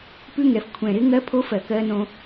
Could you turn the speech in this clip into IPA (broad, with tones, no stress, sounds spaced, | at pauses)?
p ʉ˦˥ ŋ ɛ˨˩ f kʷʰ ɛ̃˨˩ ɾ ɪ˦˥ ŋ ɜ˦˥ pʰ o˦˥ f ɜ˨˩ k ɜ˦˥ n õ˦˥